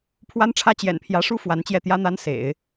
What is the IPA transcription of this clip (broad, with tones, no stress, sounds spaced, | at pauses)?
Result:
pʰ w a˥ n ʈ͡ʂʰ ä˥ t͡ɕ j ɛ̰˨˩ n pʰ j ä˧˥ ʂ u˥ f w a˧˥ n t͡ɕ j ɛ˥˩ t̪ j ä˥ n̪ a˥ n s ḛ˨˩˦ ɪ̯